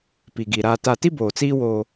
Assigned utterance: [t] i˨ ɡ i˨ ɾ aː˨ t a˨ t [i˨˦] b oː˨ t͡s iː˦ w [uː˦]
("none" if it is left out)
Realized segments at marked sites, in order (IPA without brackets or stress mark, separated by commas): p, i˦, oː˦